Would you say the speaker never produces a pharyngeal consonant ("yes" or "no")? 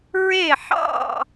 no